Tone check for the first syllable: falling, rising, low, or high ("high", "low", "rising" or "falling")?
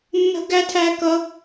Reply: high